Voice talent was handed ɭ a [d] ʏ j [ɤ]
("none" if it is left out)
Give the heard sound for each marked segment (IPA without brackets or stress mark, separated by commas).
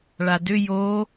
d, o